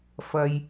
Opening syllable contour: low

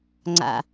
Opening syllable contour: low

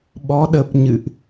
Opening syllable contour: rising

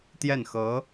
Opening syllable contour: falling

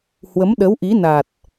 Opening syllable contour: rising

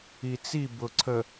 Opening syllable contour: low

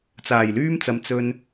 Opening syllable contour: low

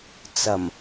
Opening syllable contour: low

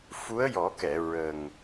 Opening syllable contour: rising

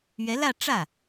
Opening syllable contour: rising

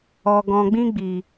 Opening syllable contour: low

